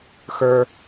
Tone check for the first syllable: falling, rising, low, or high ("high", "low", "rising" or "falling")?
high